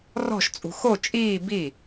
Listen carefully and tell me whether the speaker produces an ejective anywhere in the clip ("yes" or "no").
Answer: yes